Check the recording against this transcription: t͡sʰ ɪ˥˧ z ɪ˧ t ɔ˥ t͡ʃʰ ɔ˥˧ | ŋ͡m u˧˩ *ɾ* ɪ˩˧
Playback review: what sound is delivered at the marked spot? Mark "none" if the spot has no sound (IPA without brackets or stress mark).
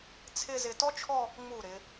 ɾ